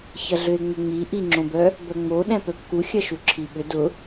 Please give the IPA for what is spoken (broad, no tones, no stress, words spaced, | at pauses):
çɐɮøe̯ŋ͡mʏŋ͡mi ʔiŋ͡ǁõbœ | bœŋ͡moɗɛ̃ pœpku xʲɐʃuǁʰiɓʏ dʊ